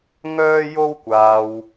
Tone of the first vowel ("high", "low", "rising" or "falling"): high